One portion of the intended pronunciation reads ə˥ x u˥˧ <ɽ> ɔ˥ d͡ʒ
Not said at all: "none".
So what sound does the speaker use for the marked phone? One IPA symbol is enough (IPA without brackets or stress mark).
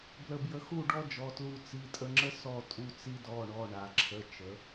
ɖ